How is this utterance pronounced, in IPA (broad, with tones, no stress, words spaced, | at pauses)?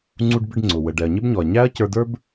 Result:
ŋ͡ǀu˧ɖbɪ˧ɖŋ͡ǀʊ˩ wə˩ɖɛ˩ɐ̯ɲɪ˧bɲɔ˩ɐ̯ ɲæ˥ɐ̯ cə˞˧də˞˥b